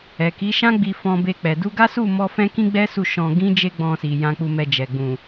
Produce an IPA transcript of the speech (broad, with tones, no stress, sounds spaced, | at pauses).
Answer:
ɛ˨ k i˨˦ ʃ ã˦ ɡ͡b i˧ f ɔ̃˧ b e˧ k͡p ɛ˨ d u˧ ɡ a˦ s u˦˨ m ɔ˧ f ɛ̃˦ k ĩ˦ ɡ͡b ɛ˦ s u˦˨ ʃ ɔ̃˧ ɡ ĩ˦ d͡ʒ e˦ ɡ͡b ɔ̃˧ s i˨ j ã˧ k͡p u˧ m ɛ˧ d͡ʒ ɛ˨ ɡ͡b ũ˨